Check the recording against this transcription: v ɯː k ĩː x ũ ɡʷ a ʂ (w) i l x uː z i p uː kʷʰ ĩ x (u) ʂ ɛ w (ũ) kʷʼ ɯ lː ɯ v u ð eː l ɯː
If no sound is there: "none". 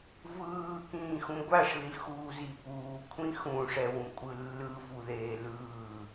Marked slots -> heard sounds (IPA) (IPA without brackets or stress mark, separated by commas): ð, ũ, ũ